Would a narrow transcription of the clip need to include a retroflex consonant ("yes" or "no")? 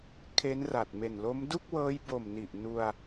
no